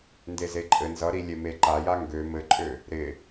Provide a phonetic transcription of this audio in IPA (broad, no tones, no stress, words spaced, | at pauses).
ndezeǃʼɘ nzʌɾi lʲeme ǃaja ŋɡø mɘǃʼø | ɾɪ